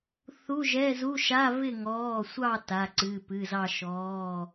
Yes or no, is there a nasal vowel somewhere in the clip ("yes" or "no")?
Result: no